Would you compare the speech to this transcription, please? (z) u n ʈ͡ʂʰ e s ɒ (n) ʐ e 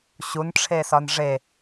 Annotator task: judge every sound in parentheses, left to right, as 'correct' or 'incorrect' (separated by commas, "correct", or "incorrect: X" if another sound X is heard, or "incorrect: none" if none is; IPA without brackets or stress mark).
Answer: incorrect: ɕ, correct